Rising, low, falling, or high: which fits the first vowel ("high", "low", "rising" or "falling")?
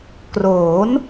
rising